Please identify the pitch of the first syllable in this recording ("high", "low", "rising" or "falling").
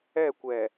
falling